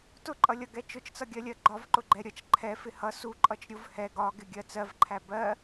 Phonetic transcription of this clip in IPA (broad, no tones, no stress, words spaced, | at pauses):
tʊǃʼʌlʲʌɡɛ t͡ʃʊt͡ʃt͡sʌɡʲɜlʲɜ ɡ͡ǃɒvǃʊɡ͡ǃɛ ɾʲʌt͡ʃ ǃʰɛfɪ hʌ su ǃʼʌt͡ʃɾʲʊv hɛ ɡɒɡɪ ɡʲɜt͡sɜvǃʰæ bɜ